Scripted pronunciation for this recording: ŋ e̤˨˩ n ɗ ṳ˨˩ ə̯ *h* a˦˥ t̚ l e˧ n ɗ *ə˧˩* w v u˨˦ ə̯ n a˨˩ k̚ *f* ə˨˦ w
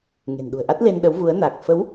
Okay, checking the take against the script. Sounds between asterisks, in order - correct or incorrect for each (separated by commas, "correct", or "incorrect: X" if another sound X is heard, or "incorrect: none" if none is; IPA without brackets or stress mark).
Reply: incorrect: ʔ, incorrect: ə˨˦, correct